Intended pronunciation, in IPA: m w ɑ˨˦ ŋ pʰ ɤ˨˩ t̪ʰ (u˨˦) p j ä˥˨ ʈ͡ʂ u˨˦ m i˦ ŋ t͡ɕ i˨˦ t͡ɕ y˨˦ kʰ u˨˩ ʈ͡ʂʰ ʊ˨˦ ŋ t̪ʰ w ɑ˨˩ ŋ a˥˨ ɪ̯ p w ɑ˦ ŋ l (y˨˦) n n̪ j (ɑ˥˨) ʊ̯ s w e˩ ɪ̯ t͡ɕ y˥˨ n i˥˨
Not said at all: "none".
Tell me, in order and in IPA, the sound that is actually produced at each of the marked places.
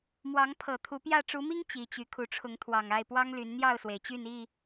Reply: u˨˦, y˨˦, ɑ˥˨

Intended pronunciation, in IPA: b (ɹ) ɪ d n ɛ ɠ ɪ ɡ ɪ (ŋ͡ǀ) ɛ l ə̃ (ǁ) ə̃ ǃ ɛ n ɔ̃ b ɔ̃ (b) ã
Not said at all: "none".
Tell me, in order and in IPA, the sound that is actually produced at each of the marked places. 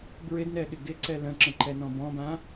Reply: ɹ, ǀ, ǁ, b

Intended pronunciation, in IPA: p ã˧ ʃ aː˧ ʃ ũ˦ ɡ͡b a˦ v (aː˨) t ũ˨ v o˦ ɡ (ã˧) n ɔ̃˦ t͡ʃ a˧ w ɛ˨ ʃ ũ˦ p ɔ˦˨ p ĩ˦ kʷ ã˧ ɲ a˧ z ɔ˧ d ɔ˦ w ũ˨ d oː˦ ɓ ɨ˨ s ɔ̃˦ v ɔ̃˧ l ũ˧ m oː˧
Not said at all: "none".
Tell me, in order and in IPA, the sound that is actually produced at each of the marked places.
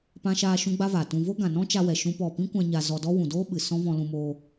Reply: aː˨, ã˨

